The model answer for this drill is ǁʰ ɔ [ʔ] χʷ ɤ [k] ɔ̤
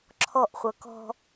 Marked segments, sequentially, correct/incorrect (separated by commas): correct, correct